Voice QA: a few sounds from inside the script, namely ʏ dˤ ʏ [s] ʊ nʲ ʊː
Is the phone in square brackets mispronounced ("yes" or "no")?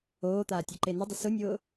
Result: no